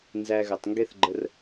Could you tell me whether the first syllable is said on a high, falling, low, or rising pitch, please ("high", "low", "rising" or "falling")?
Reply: high